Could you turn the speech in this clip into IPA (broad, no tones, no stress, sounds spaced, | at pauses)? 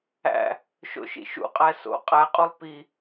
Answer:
æ̰ | ʃ o̰ ʃ ḭ ʃ ṵ qʼ æ s o̰ qʼ æ qʼ u lˠ p i